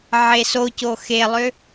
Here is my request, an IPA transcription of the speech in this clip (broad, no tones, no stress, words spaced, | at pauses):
ʕesoco xelˠø